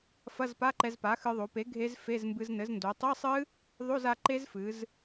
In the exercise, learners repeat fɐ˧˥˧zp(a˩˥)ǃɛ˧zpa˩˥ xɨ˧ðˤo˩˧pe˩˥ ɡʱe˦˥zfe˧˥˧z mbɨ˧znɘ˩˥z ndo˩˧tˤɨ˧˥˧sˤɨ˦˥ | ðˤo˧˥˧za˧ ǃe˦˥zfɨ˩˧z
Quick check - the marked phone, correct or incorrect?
incorrect